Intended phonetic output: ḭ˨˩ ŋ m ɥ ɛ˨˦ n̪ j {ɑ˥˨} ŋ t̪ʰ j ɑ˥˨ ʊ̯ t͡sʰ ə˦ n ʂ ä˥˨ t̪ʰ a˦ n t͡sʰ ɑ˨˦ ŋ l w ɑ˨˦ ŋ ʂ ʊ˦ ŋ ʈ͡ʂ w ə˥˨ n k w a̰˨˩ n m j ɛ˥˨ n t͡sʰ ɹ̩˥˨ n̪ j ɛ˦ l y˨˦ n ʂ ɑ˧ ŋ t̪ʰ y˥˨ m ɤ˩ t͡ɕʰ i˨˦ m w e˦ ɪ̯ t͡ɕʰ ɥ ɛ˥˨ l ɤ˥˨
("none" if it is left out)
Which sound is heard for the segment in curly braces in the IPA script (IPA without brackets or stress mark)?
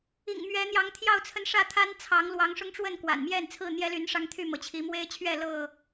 ɑ˨˦